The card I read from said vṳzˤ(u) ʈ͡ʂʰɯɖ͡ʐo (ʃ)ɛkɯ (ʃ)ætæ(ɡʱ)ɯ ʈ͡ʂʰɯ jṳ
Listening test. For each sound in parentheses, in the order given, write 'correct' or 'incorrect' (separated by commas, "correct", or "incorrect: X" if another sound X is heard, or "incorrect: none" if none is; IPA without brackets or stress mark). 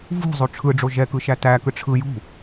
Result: incorrect: o, incorrect: ʒ, correct, incorrect: k